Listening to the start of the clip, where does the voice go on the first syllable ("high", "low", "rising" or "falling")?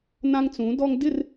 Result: high